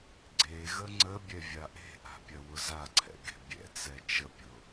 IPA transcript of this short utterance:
ɡ͡ǀ e ɣ ə ŋ͡ǀ ə bʲ ɛ vʲ a ʔ e̤ ʔ a̤ pʲ ɐ w ʊ z a ǀʰ ɛ̰ ɡ e̤ bʲ ɛ̰ t͡s ɛ t͡ʃ ə pʲ ʊ

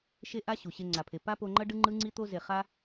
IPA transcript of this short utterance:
ʃ e˦ ʔ a˦ ɕ u˨ ɕ e˧ ŋ͡ǀ a˨ pʰ e˨ p a˦ p o˧ ŋ͡ǃ ʌ˦ ɖ ɯ˦ ŋ͡ǃ ɯ˦ ŋ͡ǀ i˦ t̪ o˧ z e˨ χ a˦

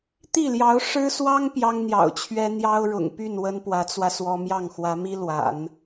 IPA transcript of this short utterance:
t̪ i˥˩ l j ɑ˧˥ ʊ̯ ʂ ɻ̩˥ s w ɑ˥ ŋ p j ɑ˥ ŋ n̪ j ɑ̰˨˩ ʊ̯ t͡ɕʰ ɥ ɛ˥ n̪ j ɑ˥ ʊ̯ ɻ ʊ̰˨˩ ŋ p y˥˩ n w ə˥ n p w ä˧˥ t͡s w ä˧ s w ɔ˥ m j ɑ˥˩ ŋ x w ä˧˥ m i˥ l w a̰˨˩˦ n

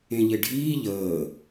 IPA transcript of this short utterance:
ẽ ʎ e ɖʱ iː ʎ əː

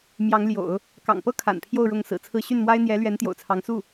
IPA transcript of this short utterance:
m j ɑ˧˥ ŋ l j o̰˨˩˦ ʊ̯ | k ɑ̰˨˩ ŋ p ɤ˥ kʰ a̰˨˩ n pʰ j o˥˧ ʊ̯ ɻ ʊ˥˩ ŋ s ɹ̩˨˩ t͡sʰ ɹ̩˥˧ ɕ y˥˩ n m w a˥ ɪ̯ n̪ j ɛ˧˥ l ɥ ɛ˧˥ n t̪ j o̰˨˩ ʊ̯ t͡sʰ ɑ˧˥ ŋ s u˥˩

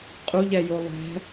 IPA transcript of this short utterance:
qʼ u ʎ ɛ j o lˠ ɛ̤

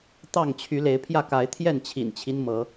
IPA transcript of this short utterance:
t̪ ɑ˥˨ ŋ t͡ɕʰ y˨˦ l e˨˦ ɪ̯ pʰ j ä˥˨ k a˨˦ ɪ̯ t̪ʰ j ɛ˥˨ n t͡ɕʰ ḭ˨˩ n t͡ɕʰ i˦ n m ɤ˨˦

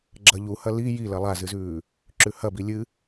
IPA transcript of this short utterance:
ɡ͡ǁ ɐ ʎ u h ɐ l i j i l ɐ lˠ a z ɨ z ʉː | ǁ ʉ h ɐ b i lʲ ɨ

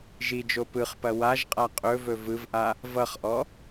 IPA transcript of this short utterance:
ʒ i d͡ʒ o p ɯ χ p ɐ w a ʒ qʼ a qʼ ɵ v ɵ v ɯ v ʔ a | v ʌ χ ʔ ɔ

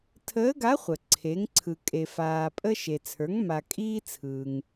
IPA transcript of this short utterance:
tʰ əː˧˥ ɡ a˧˥ χʷ ə˩ ǀʰ e˩˧ ŋ ǀʰ ɯ˩ kʼ e˩ f aː˩ pʼ ə˧ ʃ e˩ t͡sʰ ə˞˩˧ ŋ m a˩ kʼ iː˧ t͡sʰ ɯː˩ ŋ

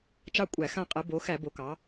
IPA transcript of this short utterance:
t͡ʃ ɑ˦˨ kʷʼ æ˧˩˧ x ã˦˨ qʼ ɛ˩˧ b o˩˧ x æ˧˩˧ b o˩˧ k ɑ˩˧

